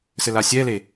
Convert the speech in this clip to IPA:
s ɘ l a sʲ ɛ l e

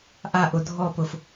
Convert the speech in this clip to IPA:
ʔ a ʔ ʊ dʱ ɔ p ʊ f

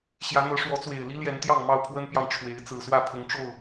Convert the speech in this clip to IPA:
ɕ j ä˨˦ n̪ ɤ˨˦ ʂ w ɔ˨˦ t͡s w e˨˩ ɪ̯ l i˦ l j ɛ˨˦ n t̪ j ɑ˥˨ ŋ m ɑ˥˨ ʊ̯ pʰ w ə˦ n p j ɑ˨ ŋ ʈ͡ʂʰ w e˨˦ ɪ̯ t͡s ɹ̩˨˩ s w ä˥˨ pʰ ʊ˨˦ ŋ ʈ͡ʂ o˥˨ ʊ̯

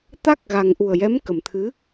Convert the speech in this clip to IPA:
t̪ a˦˥ k̚ ɣ a˨˩ ŋ ʔ u˨˩ ə̯ j ɛ˧˥ m k ə˨˩ m t̪ʰ ɨ˧˥

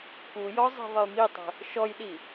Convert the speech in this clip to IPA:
k u j ɔ zˤ i̤ ðˤ ə j m i tˤ ə̤ | ʃ ɔ j ɗ i

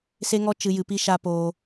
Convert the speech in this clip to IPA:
s e˦ ŋ ɔ˦ t͡ʃ ɨ˨ j ɨ˨ p i˧ ʃ a˧ p oː˧

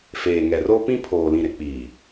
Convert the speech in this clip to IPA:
f eː˨ ŋ ɛ˨ r o˦ p ĩ˦ pʰ oː˨ l ĩ˨ ɾ ɪ˨ k͡p iː˨

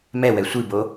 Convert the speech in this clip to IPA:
m ɛ w ɛ sʷ i b o

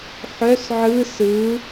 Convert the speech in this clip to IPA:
ħ œ s ʕ ɯ s ɯ

